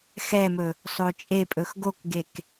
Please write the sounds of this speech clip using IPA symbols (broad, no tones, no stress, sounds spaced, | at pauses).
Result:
x ɛ m ɵ | sˤ o t͡ʃʼ e pʼ ɵ x ɡ o k ɡ e k